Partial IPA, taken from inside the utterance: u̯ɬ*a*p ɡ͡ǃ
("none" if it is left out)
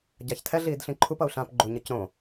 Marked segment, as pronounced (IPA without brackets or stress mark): ã